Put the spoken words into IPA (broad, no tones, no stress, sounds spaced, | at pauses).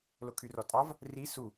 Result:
l o kʰ y r ɔ tʼ ɑ v | r i s u